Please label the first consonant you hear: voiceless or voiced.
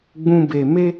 voiced